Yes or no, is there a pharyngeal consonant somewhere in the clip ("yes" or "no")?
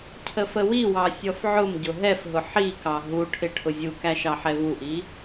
yes